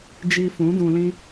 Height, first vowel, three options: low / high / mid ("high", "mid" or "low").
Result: high